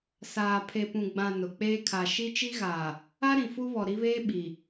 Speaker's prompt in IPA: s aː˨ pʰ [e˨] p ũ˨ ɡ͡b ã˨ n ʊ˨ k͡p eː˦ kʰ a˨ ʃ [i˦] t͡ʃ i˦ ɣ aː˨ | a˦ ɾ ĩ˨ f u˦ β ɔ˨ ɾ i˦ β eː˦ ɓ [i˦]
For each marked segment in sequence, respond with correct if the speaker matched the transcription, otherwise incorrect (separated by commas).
correct, correct, incorrect